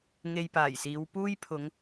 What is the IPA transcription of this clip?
ŋ e˧ j p aː˨˩ j s iː˨˧ w p uː˥ j pʰ ʊ˨˧ ŋ

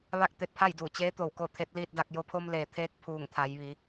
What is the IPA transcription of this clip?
ʋ a˥˨ k̚ t̪ e˧ t̚ pʰ a˥˨ j d uː˧˩ t͡ɕ eː˧˥ t̪ o˧˩ w k o˥˨ t̪ʰ e˧˥ t̚ l iː˥˨ t̚ d a˥˨ k̚ j o˧ pʰ o˧ m l eː˩ t̪ʰ eː˧ k̚ pʰ uː˧˩ ŋ t̪ʰ a˩˧ j ʋ i˩˧

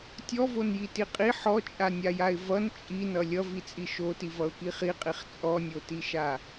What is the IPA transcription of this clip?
tʲ ɔ v o n j i t i qʼ i ħ ɔ t͡ʃʼ a nʲ a j a ɪ̯ v ʌ n t͡ʃʼ i n ʌ lʲ ʌ v i t͡sʼ i ʃ o t i v ʌ ʊ̯ k i χ i qʼ i χ t͡sʼ ɔ nʲ o t i ʃ a

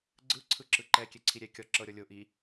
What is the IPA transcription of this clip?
ɡ͡ǀ ɯ ǀʰ ɯ ǁ ɯ ǃ ɛ kʲ ɛ ǀʰ i ɾʲ ɛ kʲ ɔ ǁ ɤ ɾʲ ɔ lʲ o ʔ i

